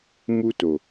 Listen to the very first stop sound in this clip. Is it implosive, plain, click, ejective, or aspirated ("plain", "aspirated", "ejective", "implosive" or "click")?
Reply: plain